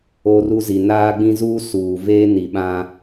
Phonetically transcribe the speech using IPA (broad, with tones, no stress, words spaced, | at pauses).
o˦ru˦ zi˨naː˦ɡ͡bĩ˦ zuː˦ suː˨ veː˦ni˨ɓã˦